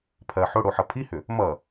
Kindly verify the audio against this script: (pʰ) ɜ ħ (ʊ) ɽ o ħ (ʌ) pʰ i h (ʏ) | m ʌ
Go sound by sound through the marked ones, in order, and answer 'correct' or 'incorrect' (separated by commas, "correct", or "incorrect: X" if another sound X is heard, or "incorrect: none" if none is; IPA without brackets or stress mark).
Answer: correct, correct, correct, correct